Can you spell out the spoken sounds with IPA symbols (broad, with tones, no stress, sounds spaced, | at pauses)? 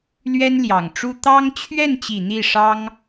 l ɥ ɛ˥ n l j ɑ˨˩ ŋ ʈ͡ʂ u˥ t̪ ɑ˥ ŋ t͡ɕʰ ɥ ɛ˥˩ n t͡ɕ i˨˩ n̪ i˥˩ ʂ ɑ˥ ŋ